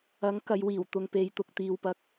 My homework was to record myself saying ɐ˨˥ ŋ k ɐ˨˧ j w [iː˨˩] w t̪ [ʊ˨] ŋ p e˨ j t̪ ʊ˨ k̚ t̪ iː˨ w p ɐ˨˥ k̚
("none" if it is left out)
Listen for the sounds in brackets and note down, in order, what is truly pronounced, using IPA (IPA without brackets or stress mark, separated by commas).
iː˨˩, ʊ˨